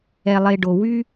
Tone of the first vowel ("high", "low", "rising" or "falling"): low